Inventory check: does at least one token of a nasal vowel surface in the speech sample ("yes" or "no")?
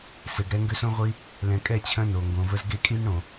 yes